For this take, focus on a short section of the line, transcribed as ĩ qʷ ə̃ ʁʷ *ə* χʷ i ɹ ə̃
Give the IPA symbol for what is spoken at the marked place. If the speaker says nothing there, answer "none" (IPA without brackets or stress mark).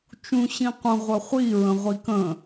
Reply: ə